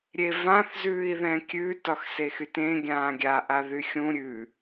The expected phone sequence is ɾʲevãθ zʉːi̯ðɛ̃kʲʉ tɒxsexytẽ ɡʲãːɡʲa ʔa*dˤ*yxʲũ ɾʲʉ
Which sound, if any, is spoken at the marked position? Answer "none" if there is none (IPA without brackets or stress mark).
ð